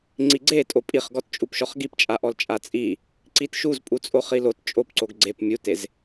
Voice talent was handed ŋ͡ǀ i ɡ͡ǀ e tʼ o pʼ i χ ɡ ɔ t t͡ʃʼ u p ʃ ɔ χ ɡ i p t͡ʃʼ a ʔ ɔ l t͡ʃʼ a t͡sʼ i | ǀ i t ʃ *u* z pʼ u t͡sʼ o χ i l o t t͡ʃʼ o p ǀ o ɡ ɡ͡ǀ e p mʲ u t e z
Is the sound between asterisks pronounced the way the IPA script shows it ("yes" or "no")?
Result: yes